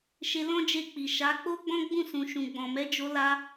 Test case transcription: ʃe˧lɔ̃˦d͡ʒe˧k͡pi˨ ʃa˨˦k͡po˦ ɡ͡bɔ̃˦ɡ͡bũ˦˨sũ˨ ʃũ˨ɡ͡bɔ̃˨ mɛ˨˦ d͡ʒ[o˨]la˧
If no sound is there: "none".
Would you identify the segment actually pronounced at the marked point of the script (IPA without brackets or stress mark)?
o˧